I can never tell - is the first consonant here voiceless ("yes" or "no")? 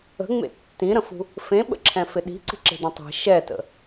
no